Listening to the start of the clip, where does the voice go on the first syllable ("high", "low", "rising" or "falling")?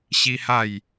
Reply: high